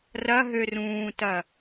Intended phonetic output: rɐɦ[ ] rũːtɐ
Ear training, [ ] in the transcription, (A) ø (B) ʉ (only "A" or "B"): A